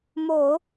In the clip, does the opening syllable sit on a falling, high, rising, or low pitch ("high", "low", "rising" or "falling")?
low